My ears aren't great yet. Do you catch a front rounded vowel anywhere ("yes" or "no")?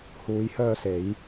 yes